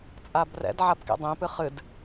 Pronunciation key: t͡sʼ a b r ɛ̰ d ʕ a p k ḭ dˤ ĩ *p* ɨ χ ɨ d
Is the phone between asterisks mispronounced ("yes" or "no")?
no